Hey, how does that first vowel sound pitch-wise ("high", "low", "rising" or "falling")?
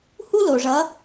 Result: high